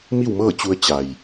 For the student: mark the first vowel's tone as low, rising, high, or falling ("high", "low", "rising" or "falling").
falling